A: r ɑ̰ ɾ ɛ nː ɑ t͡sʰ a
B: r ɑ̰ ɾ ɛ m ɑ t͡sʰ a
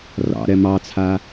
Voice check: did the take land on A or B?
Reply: B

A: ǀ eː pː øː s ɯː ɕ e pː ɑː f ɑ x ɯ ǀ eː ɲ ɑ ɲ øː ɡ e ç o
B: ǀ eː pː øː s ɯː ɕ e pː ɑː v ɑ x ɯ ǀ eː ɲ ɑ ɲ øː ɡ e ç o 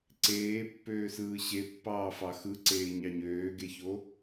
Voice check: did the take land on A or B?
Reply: A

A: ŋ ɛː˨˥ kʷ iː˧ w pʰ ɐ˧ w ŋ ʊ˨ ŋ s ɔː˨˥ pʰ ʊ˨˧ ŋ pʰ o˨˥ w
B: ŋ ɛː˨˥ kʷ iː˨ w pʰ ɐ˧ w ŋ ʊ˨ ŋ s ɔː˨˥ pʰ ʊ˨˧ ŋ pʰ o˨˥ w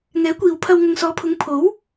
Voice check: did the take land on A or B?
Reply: B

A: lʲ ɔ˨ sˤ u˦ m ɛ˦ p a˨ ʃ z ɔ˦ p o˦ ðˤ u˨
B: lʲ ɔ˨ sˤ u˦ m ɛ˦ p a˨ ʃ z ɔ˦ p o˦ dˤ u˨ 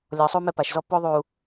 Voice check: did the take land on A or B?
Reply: A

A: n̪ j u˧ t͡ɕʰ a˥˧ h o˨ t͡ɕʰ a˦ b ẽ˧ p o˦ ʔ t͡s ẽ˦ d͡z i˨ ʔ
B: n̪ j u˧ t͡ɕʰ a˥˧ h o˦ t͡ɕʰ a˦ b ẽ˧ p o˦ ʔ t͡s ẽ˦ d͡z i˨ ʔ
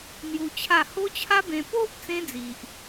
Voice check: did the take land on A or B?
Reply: B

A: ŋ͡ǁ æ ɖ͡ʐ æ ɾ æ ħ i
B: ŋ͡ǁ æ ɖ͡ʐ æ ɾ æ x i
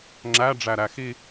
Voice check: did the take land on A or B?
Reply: B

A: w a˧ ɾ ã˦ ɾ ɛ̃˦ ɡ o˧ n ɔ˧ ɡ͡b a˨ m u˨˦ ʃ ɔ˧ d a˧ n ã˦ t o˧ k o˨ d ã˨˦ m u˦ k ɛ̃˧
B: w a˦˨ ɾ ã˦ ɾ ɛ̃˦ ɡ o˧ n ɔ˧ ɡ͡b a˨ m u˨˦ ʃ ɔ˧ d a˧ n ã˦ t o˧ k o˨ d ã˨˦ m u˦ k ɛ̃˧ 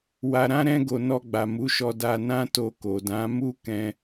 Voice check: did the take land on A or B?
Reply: A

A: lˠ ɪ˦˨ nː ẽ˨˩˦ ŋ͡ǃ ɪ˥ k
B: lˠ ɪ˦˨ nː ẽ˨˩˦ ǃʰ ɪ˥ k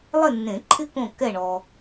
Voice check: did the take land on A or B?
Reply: B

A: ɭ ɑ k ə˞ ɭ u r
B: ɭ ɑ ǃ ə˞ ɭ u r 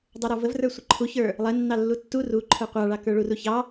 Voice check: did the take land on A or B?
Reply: A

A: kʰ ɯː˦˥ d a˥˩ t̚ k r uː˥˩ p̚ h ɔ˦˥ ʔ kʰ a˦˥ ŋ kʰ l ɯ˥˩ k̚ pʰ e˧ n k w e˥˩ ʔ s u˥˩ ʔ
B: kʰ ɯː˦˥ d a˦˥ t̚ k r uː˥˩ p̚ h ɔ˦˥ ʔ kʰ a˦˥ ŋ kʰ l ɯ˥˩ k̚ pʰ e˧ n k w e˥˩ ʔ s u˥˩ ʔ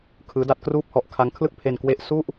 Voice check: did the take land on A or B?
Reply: B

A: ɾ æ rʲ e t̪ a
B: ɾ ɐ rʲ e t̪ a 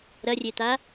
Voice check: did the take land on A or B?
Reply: B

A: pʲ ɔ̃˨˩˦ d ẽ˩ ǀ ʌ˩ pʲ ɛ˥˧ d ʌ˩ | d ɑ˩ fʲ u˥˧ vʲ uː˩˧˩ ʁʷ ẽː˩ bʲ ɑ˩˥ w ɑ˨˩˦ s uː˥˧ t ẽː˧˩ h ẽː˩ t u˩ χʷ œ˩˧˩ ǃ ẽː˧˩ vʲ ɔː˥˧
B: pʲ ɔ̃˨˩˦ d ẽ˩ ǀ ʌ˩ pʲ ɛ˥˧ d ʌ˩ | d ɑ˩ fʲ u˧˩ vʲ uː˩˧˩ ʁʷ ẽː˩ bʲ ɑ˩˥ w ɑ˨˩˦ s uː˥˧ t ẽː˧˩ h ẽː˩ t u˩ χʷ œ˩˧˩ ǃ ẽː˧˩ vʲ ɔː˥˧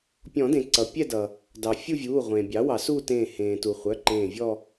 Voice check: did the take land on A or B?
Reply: A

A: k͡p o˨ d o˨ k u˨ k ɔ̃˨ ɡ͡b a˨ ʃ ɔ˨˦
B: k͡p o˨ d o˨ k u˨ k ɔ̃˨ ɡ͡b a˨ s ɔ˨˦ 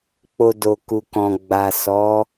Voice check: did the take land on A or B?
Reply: B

